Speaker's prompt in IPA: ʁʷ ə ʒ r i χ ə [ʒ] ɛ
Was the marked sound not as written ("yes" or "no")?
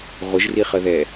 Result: yes